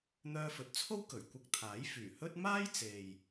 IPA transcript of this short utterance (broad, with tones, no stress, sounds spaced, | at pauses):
n̪ œː˧ f ɵ˨˥ t̚ t͡sʰ o˥ w k ɵ˨˩ ɥ kʷ ɐ˧ k̚ t̪ʰ aː˨˥ j f yː˨˩ h ɵ˥ t̚ m aː˥ j t͡s e˨ j